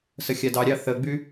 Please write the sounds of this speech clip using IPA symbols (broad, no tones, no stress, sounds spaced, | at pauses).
s ə xʲ a d ɑ ɾʲ ɑ θ ə ɡ͡b y